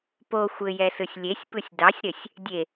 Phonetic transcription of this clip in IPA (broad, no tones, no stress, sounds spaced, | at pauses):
p o xʷ ɘ j ɛ s ɯ sʲ lʲ e sʲ p ɯ sʲ d ɑ sʲ ɾ ɘ sʲ | dʲ e